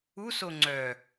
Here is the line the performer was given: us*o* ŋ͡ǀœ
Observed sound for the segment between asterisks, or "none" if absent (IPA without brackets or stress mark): o